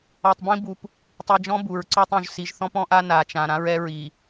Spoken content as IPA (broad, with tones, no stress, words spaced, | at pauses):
ɔ˨tˤbĩ˦bu˨p | tˤi˨d͡ʒɔ̃˦ bu˨ɹǀɔ˦tˤũ˨ʒ si˨ʒθɔ̃˦pɔ̃˦ʔa˦ na˨t͡ʃã˨ ɾã˦ɹɛ˦ɹi˨